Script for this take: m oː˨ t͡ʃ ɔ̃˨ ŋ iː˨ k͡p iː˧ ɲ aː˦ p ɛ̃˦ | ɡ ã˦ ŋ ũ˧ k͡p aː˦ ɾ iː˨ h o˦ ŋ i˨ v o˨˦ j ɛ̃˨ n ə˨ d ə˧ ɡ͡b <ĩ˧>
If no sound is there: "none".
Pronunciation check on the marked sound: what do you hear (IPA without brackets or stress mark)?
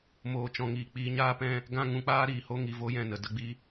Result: i˧